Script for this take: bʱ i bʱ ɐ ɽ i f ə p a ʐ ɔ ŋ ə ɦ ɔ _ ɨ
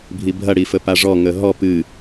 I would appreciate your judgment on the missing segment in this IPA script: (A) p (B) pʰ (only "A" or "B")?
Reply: A